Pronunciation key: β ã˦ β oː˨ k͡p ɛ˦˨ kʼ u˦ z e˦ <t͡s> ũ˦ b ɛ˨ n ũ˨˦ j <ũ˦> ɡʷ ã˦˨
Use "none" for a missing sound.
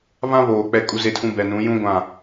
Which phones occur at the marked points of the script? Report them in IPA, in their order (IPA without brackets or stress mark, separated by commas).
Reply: tʰ, ũ˦